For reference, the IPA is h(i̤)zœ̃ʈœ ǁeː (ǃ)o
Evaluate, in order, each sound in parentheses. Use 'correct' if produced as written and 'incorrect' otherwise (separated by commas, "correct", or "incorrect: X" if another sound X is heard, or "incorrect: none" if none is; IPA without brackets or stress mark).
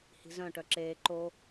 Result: correct, correct